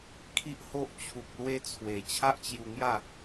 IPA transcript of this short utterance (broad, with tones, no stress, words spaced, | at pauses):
kʰi˦ʔho˦ʔ t͡ɕʰu˨k̚lwe˧t͡sʰwe˨˩ t͡ɕʰa˦ʔt͡ɕju˧ŋja˥˧